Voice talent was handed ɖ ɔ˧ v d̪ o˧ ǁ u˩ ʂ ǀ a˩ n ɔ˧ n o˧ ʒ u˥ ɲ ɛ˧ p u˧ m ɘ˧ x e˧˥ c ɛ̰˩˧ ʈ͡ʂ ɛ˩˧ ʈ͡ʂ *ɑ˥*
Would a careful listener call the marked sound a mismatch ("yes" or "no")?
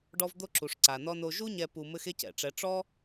yes